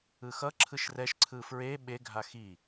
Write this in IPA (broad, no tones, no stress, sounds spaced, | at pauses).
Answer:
ɯ x ʌ ǁʰ ɯ ʃ r ɛ ʃ ǀʰ ɯ f ɹ e ɓ e ɡʱ a x i